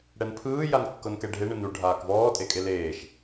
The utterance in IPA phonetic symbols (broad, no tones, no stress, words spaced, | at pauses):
ɽɛnpʰɯː jankːɤnkɛɖʱe ɳɯnu ɖʱaːkvɔː tʼekʼeleːʃ